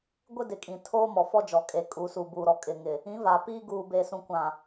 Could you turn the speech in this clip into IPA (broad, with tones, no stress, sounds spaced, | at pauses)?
ɡʷ ɪ˦ d ɪ˨ kʼ ĩ˨ tʰ oː˦ m ɔ˨ f ɔ˦ d͡ʒ ɔ˨ kʼ e˨ kʼ uː˨ s u˨ b uː˨ ɾ ɔ˨ kʼ ɪ˨ ŋ ɪ˨ | ĩ˨˦ v a˨ p iː˦ ɡ uː˨ b e˨ s ũ˨ kʷ ã˨